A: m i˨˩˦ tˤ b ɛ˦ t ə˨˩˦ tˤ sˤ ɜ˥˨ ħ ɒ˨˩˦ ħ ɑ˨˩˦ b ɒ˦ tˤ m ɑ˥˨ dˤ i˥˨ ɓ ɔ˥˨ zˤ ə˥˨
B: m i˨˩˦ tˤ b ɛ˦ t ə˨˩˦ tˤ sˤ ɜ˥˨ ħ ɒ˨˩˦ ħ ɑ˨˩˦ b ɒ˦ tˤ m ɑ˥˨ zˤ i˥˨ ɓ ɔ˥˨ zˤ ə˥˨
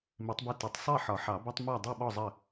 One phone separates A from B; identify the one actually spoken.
A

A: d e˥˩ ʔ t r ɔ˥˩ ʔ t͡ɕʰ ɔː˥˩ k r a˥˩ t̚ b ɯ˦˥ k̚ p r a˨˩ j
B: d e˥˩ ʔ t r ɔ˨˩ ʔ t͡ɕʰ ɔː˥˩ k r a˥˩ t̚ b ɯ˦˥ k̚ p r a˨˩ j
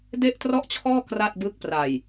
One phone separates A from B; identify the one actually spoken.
A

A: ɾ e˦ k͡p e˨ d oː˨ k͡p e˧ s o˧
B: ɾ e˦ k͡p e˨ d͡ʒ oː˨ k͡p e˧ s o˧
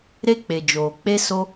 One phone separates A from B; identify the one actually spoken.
B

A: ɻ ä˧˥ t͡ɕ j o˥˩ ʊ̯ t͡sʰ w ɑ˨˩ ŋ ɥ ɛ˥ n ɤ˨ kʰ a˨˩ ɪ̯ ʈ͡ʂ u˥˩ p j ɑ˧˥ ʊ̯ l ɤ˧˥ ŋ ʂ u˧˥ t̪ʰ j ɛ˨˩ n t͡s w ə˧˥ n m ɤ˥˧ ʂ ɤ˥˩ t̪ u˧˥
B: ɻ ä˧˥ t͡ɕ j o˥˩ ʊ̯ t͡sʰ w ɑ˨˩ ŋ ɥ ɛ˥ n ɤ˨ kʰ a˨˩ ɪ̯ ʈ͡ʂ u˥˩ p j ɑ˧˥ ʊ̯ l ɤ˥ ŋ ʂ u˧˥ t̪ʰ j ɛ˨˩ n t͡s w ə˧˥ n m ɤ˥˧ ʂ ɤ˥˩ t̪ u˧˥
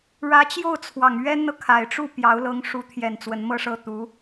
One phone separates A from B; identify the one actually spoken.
A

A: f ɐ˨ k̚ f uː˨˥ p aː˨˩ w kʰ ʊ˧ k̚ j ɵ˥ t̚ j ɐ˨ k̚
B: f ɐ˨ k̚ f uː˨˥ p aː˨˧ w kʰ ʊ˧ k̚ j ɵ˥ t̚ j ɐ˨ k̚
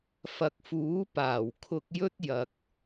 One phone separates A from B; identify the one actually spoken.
A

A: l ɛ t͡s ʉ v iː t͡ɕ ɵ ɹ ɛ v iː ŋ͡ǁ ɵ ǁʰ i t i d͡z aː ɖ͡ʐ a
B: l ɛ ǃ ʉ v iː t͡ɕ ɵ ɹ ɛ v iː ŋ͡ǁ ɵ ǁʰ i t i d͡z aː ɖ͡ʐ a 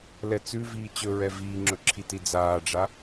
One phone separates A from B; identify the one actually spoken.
A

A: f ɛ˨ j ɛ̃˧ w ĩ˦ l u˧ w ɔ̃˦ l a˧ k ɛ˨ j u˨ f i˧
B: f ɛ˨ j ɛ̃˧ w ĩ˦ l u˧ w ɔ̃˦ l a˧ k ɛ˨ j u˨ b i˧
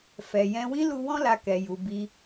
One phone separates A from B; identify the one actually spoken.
B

